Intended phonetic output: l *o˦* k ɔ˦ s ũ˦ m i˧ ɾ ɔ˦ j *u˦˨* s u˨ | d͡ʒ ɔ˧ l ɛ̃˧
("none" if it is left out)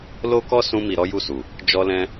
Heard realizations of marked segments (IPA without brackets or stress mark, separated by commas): o˦, u˦˨